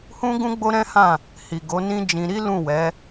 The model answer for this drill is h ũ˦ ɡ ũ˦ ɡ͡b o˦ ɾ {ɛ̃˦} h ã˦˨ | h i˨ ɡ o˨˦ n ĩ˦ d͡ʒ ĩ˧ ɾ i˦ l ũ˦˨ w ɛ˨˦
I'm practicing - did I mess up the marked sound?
no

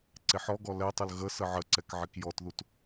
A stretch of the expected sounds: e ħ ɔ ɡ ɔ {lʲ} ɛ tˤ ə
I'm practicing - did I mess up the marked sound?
yes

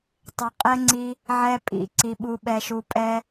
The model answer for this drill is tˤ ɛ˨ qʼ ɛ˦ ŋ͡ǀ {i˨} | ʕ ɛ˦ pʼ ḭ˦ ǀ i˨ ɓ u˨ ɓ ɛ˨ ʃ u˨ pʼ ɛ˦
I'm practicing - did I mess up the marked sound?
yes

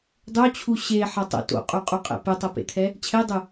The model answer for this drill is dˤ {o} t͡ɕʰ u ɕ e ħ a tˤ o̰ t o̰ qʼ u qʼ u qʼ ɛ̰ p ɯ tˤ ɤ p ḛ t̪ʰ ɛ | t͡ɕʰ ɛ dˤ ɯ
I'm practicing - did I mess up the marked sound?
no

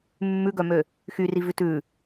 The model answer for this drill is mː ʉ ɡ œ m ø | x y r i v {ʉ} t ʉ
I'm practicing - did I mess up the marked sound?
no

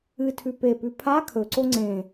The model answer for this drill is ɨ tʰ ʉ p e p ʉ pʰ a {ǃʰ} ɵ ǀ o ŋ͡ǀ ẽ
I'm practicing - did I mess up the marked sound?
yes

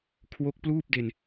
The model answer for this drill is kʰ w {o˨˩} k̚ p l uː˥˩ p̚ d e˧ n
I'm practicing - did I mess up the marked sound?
yes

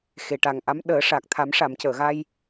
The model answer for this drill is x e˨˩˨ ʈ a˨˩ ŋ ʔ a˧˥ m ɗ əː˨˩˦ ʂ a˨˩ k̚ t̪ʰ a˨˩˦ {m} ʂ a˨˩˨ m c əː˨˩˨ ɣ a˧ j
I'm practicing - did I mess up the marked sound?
no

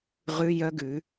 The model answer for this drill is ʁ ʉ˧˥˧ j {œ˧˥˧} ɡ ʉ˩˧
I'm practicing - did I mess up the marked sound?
no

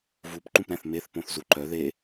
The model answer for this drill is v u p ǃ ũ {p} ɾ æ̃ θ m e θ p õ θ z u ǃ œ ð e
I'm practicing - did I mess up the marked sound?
no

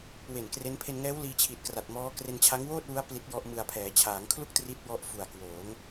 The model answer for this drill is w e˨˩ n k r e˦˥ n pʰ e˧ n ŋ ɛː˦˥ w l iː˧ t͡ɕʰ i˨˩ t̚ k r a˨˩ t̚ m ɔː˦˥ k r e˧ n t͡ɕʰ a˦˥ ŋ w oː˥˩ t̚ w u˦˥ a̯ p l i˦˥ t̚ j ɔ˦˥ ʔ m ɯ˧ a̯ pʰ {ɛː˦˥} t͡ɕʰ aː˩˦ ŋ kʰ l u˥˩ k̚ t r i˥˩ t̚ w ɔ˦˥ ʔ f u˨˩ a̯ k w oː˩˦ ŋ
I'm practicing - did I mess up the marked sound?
yes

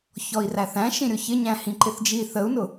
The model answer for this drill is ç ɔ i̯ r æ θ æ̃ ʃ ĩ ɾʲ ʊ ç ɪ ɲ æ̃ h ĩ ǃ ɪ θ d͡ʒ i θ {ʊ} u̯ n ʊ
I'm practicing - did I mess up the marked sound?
yes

